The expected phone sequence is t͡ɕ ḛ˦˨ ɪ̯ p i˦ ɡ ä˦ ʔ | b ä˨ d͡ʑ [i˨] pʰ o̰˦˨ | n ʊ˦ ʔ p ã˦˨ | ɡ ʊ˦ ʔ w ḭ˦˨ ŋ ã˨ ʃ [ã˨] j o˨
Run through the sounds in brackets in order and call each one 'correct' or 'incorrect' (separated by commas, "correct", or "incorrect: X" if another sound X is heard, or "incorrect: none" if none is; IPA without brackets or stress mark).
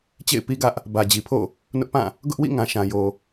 correct, correct